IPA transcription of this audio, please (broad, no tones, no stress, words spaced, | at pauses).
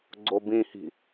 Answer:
ɡ͡ǀobĩhi̤